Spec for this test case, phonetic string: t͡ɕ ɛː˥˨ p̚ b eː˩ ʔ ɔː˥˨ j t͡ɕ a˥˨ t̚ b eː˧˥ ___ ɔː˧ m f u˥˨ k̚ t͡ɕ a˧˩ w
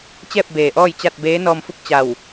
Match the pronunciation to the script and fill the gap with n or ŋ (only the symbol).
n